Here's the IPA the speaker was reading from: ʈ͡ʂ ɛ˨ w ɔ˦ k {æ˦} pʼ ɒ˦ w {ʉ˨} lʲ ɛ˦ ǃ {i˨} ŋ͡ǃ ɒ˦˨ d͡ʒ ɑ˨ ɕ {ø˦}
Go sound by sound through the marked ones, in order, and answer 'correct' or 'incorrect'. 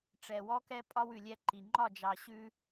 incorrect: ɛ˦, correct, correct, incorrect: ʉ˦

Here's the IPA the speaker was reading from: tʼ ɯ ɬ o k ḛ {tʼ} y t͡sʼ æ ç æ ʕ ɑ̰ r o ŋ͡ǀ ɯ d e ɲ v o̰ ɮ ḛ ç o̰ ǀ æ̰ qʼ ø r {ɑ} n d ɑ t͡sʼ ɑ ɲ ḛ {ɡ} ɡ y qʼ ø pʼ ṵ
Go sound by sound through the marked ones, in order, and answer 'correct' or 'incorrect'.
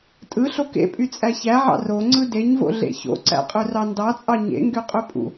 incorrect: pʼ, correct, incorrect: ŋ

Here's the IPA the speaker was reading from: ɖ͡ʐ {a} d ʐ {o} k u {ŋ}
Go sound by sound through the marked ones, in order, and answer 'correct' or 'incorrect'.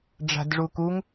incorrect: a̤, incorrect: u, correct

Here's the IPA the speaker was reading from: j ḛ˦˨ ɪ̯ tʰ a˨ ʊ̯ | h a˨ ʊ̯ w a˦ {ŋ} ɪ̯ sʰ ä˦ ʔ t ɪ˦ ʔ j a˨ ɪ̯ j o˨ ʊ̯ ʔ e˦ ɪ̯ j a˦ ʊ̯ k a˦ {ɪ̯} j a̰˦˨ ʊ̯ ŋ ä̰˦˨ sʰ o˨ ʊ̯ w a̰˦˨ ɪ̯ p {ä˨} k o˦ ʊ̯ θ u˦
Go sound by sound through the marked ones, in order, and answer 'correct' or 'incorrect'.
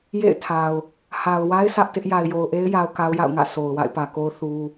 incorrect: none, incorrect: ʊ̯, correct

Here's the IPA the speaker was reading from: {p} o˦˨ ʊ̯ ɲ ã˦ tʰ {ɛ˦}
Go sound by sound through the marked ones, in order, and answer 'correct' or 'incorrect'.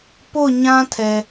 correct, incorrect: ɛ˨

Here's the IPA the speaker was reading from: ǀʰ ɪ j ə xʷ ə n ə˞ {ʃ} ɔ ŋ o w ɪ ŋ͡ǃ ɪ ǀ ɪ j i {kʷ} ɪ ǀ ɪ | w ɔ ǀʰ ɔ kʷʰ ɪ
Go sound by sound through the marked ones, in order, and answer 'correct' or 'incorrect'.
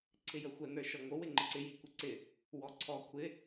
correct, correct

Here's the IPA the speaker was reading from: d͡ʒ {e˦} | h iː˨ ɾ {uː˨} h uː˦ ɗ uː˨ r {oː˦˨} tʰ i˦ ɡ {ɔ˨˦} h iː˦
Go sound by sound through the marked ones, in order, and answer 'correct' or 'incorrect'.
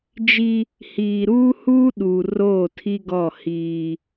incorrect: i˦, incorrect: uː˦, correct, incorrect: ɔ˦˨

